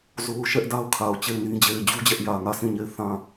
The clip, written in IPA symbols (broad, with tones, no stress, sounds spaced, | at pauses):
z o˦ ʊ̯ ʃ ɛ˦ ʔ d a˦ ʊ̯ kʰ a˨ ʊ̯ t͡ɕ e˦˨ ɪ̯ n ĩ˦ d͡ʑ e˨ ɪ̯ d͡ʑ u˦ d͡ʑ ɛ˦ ʔ j ä˨ ŋ ä˦˨ s ĩ˦˨ ɲ e˦˨ ɪ̯ θ ã˦˨